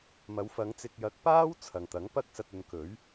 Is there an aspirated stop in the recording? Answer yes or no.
yes